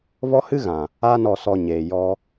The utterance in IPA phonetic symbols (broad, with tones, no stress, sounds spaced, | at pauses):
v ɔ˦ h ɨ˦ ɣ ã˨ | a˦ n ɔ˧ s ɔ˧ ɲ eː˨ j ɔ˦